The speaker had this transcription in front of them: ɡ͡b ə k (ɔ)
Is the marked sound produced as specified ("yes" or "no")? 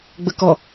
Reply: yes